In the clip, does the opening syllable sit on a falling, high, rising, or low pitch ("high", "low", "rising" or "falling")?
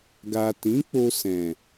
low